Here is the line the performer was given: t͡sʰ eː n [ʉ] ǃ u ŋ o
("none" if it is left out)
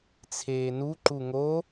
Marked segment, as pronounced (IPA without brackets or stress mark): u